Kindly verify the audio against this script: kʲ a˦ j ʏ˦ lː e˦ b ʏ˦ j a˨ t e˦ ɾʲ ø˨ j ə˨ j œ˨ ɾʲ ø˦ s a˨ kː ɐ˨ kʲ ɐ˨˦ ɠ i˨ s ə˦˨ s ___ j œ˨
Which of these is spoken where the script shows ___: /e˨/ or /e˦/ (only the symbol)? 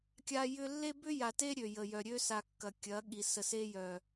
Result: e˦